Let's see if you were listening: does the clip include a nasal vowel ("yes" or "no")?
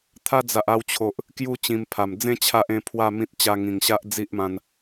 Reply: yes